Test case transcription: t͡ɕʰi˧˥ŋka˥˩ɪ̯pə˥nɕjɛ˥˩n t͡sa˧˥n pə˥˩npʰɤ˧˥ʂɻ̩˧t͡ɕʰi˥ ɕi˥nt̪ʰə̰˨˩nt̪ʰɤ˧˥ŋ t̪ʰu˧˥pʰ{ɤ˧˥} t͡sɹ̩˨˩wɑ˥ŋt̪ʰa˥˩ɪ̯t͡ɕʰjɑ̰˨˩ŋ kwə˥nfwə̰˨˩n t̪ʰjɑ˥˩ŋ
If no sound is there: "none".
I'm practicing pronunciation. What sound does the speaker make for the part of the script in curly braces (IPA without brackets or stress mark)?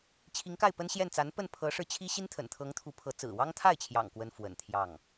ɤ˧˥